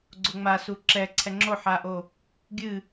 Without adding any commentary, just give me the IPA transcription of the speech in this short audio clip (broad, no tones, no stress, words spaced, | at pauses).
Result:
ɡ͡ǀoŋ͡ma suǁɛǀʰɛ ŋ͡ǁoħaʔo | ɡʲɨ